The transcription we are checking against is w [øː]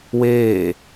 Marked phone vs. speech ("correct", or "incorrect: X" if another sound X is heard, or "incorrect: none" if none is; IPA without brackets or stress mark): incorrect: eː